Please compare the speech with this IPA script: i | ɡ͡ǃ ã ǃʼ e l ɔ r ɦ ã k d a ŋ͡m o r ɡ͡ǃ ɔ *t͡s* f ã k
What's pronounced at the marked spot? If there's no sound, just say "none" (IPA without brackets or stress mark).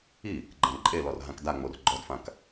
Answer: d